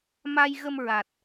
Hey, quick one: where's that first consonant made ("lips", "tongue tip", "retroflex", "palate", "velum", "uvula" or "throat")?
lips